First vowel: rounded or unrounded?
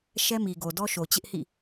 unrounded